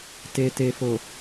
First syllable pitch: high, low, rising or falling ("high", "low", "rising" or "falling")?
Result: low